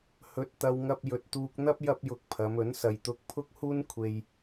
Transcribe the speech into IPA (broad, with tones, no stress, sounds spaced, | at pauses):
h ɵ˧ t̚ t̪ ɐ˧ w ŋ ɐ˧ p̚ j ɵ˧ t̚ t̪ uː˧ k̚ n̪ ɐ˥ p̚ j ɐ˥ p̚ j ʊ˧ k̚ pʰ ɐ˨˧ m ɵ˨˥ n s ɐ˨ j t̪ ʊ˧ k̚ pʰ ʊ˥ k̚ h uː˥ n kʷʰ e˧ j